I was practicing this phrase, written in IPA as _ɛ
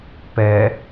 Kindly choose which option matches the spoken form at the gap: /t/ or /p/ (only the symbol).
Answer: p